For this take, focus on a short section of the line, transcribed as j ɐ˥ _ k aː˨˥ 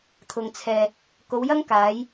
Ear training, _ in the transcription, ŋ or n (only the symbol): ŋ